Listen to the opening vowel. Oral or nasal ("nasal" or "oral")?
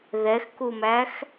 oral